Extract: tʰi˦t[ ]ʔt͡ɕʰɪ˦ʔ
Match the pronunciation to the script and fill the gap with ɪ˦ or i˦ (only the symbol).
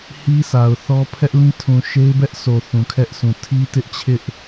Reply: ɪ˦